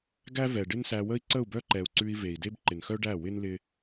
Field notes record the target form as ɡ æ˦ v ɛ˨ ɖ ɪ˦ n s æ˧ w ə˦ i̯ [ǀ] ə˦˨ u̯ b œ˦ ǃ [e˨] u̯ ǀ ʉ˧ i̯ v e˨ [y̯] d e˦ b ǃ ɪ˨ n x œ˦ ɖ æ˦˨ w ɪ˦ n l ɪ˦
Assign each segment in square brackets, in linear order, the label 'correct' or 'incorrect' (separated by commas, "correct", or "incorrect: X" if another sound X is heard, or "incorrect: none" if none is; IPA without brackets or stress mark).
correct, incorrect: ɛ˨, incorrect: i̯